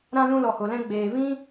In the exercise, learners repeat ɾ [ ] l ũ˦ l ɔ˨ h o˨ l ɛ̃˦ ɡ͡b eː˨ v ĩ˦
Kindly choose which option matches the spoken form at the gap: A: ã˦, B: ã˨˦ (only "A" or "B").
A